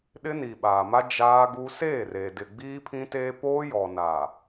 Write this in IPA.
ɗ ɪ˦ n i˨ ɓ aː˨ m a˦ d͡ʒ aː˦ ɡ u˦ s eː˦˨ r e˨ d ɪ˨ ɡ͡b iː˦ pʰ ĩ˦ t eː˦ p oː˦ j ɔ˨ n a˨

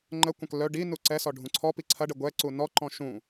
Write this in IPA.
ŋ͡ǃ ə kʷ ɐ̃ k l œ ɖ i n u ǀ ɛ s ɔ ɖʱ ũ ǀʰ ɔ p i ǀʰ ɐ ɖ ə ɡʷ ɛ ǀ u n ɔ ǃ ɔ̃ ʃ ũ

